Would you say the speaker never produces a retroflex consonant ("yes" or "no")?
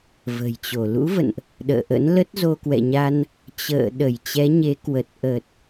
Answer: yes